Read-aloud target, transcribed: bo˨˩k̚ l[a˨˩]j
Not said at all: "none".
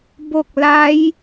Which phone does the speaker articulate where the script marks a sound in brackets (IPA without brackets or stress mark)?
a˦˥